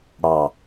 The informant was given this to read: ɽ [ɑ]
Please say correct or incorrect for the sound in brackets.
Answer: correct